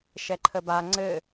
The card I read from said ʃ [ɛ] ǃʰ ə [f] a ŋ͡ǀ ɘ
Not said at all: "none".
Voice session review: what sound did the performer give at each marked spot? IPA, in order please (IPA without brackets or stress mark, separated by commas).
ɛ, b